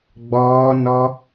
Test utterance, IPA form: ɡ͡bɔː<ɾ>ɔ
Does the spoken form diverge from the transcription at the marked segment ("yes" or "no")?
yes